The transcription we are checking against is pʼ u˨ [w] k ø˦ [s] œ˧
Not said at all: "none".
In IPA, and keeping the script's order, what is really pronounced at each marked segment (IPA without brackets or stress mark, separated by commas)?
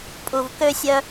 v, sʲ